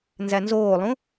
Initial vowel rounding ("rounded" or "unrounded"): unrounded